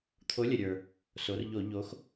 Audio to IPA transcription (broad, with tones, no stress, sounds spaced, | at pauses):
t̪ʰ o˨˥ lʲ ə˩ ɾʲ ə˞˩ | s o˩˧ r ʎ o˧˩˧ ʎ o˩˧ x